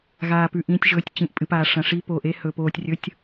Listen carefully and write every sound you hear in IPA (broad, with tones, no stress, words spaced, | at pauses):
ɣaː˩pʉ˩ʔĩː˩˧tʲ ʒɵː˩˧tʲt͡ɕĩ˩ʔ pʼɨ˩paː˩ʂɐ̃˩ʂi˩˧ po˩ʔe˩˧hɵ˩ poː˩tʲrʲɵ˩˧tʲ